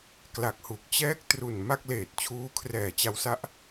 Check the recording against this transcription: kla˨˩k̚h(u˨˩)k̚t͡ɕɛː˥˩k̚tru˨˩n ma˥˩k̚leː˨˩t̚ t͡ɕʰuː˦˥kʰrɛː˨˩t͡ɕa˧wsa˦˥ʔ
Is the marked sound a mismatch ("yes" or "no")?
no